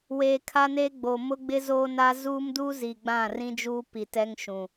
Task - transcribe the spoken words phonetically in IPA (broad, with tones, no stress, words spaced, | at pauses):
weː˨kʰa˦neː˦ɡ͡boː˨ mʊ˦ɡ͡bɪ˦ zoː˦na˦ zuː˦mdu˦zi˨ ɡ͡bã˦˨rĩ˦d͡ʒuː˦ pi˨tɛ˦ŋ ʃũ˨